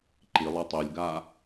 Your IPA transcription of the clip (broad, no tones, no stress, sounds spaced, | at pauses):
ǃ i lˠ ɛ tˤ e lʲ ɡ a